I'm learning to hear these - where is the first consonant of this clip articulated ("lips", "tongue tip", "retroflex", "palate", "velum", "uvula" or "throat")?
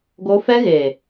velum